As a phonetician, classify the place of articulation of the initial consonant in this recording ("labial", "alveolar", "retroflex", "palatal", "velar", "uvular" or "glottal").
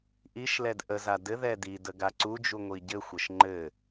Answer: glottal